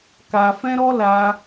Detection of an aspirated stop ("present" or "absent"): absent